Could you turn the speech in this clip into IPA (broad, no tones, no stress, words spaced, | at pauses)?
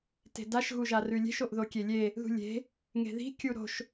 te̤daʃ ɣuʒarʉlʲe̤ʃ oʔðokʲelʲe | ðṳlʲe̤ | ŋe̤ði̤ kʲuɾo̤ʃ